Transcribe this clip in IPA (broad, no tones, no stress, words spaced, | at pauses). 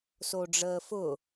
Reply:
soɖ͡ʐəːfʊ